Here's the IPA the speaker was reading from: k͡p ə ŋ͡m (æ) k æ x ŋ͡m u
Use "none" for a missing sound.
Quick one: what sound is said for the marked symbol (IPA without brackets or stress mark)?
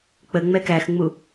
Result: ɛ